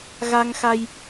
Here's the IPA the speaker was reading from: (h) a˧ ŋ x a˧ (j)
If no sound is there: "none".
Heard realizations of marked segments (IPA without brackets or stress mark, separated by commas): ɣ, j